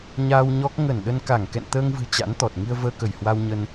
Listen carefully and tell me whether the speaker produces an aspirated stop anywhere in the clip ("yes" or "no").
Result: no